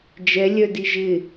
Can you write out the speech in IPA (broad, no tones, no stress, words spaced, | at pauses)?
d͡ʒɛlʲœ diʒɪ